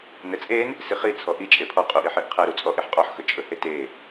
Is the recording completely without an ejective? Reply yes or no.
no